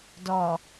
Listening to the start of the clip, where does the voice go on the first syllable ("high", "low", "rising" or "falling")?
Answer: low